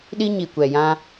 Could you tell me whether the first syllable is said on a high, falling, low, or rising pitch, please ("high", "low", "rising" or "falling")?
high